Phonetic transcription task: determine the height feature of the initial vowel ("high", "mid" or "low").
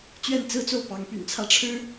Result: mid